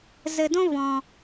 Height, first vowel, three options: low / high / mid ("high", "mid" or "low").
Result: mid